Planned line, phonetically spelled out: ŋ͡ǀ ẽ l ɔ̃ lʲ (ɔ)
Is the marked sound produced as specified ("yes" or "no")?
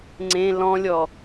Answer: yes